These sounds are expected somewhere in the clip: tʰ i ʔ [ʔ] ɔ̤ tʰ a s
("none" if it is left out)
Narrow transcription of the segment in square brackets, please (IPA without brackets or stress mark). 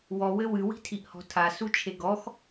h